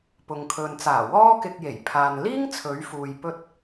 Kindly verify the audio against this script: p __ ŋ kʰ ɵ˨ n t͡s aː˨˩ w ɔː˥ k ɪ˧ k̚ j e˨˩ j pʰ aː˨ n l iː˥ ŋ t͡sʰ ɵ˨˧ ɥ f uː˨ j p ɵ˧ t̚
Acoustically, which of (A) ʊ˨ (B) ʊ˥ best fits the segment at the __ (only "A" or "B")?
A